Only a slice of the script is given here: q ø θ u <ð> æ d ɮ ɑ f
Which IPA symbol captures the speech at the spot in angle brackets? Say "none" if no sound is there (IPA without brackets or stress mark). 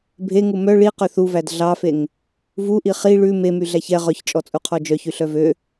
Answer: v